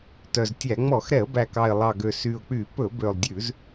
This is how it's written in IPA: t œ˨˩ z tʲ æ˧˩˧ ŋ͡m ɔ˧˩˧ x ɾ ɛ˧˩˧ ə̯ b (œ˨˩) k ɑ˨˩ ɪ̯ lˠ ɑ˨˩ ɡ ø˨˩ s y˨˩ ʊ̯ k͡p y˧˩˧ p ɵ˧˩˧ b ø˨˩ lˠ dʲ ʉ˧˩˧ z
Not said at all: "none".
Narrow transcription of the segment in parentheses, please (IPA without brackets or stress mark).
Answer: æ˨˩